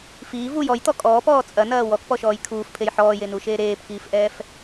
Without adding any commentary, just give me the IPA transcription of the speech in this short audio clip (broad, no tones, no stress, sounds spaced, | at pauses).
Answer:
f iː v u j ɔ j t̪ ɔ kʼ ɔː p ɔː t͡sʼ ɐ n ɐː w ɔ k p ɔ ʃ ɔː j kʰ uː f pʰ e j ħ ɔː j e n uː ʃ eː ɾ eː p k iː f ʔ ɛː f